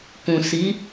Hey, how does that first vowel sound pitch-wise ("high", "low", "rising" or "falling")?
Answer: low